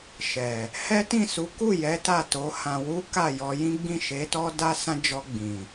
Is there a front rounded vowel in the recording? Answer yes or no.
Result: no